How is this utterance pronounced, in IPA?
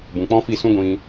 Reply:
b ũ˨ k͡p ɔ̃˦ f i˦˨ s ũ˦ ɡʷ ĩ˧

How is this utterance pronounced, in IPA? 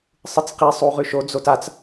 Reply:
sˤ ɨ t͡s q i sˤ u ʁ ʉ ʃ o d͡z o t a t͡s

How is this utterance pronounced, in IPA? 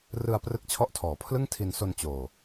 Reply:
r ɯ˧ a̯ p r ɯ˦˥ k̚ t͡ɕʰ ɔ˦˥ ʔ tʰ ɔː˩˦ pʰ l ɯ˥˩ ŋ tʰ i˧ n s o˧ n t͡ɕ oː˧

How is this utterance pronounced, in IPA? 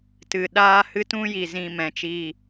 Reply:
t ɨ˨ ɗ aː˦ h ɨ˦ t ũ˦ j i˨ z ĩ˧ m ɛ̃˨˦ t͡ʃ i˦˨

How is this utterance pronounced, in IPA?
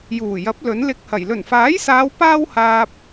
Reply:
j uː˨˩ j ɐ˨˥ p̚ l ɵ˨˥ n l ɪ˧ k̚ h ɐ˨˩ j l ɵ˨˩ n f aː˨˥ j s aː˨˧ w p aː˥ w h aː˧ p̚

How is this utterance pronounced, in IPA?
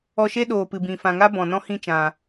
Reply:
ɔ˧ ʃ e˦ ɗ oː˨ p ɨ˨ b ĩ˨ f ã˨ ŋ a˦ b ɔ̃˨ n ɔ̃˦ h ĩ˦˨ t͡ʃ ã˨

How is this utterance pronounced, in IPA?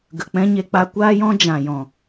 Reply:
ɡ ə˨ k͡p ɛ̃˧ ɲ e˧ k͡p a˧ kʷ aː˦ j ɔ̃˦ d͡ʒ ã˨ j ɔ̃˨

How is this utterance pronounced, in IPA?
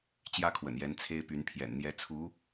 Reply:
t͡ɕ j ä˥ kʰ w ə̰˨˩ n j ɛ˧˥ n t͡sʰ e˥ ɪ̯ p y˧˥ n pʰ j ɛ̰˨˩ n n̪ j ɛ˧˥ t͡sʰ u˧˥

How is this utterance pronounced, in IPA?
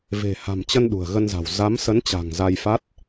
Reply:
v e̤˨˩ h a̤˨˩ m t͡ɕ ə˧ n ɗ ṳ˨˩ ə̯ ɣ ə˧ n z a̤˨˩ w z a˨˦ m s ə˨˦ n t͡ɕ a̤˨˩ ŋ z a˧ j f a˦˥ t̚

